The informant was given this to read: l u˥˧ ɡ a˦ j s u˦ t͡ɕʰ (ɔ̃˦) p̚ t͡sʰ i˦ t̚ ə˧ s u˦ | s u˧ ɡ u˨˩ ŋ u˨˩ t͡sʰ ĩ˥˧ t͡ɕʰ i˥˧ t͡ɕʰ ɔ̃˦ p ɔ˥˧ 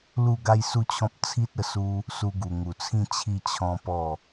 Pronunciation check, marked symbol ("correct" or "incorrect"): correct